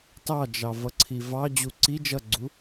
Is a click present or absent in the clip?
present